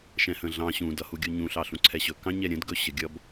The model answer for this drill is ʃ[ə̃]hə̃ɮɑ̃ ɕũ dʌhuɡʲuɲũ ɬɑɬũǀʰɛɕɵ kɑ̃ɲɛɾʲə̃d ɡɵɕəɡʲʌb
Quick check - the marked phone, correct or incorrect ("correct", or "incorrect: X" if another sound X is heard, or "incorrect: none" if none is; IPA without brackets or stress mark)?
incorrect: ɛ̃